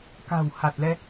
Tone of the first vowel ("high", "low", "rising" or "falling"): low